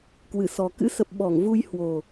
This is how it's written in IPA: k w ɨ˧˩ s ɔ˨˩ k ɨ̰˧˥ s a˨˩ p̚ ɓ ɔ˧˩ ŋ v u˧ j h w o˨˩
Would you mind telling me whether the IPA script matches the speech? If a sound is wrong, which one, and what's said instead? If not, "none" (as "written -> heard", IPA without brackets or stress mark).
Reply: a˨˩ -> ə˨˩